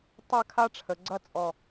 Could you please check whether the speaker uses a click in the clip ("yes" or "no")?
yes